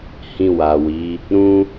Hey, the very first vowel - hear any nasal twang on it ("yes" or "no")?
yes